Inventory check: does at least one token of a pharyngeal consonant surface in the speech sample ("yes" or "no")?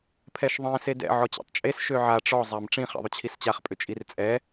yes